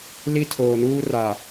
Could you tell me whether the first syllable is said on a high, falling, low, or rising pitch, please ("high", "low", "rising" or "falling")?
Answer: high